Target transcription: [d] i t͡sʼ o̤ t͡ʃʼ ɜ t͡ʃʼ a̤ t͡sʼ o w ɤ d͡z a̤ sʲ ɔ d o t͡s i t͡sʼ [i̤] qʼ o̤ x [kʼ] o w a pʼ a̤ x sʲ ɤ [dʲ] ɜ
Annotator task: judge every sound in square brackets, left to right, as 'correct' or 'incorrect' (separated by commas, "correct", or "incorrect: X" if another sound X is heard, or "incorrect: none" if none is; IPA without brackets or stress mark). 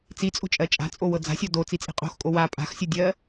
incorrect: t͡s, correct, correct, correct